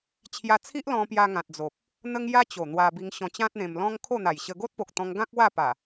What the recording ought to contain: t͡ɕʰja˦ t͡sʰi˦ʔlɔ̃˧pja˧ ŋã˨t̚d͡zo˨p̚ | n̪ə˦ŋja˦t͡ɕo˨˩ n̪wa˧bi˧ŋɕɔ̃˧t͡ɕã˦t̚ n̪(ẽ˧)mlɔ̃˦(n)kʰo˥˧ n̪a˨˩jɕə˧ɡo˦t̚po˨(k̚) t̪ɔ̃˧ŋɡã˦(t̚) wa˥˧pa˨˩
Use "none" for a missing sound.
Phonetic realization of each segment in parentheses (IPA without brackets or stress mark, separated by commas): ẽ˧, ŋ, k̚, k̚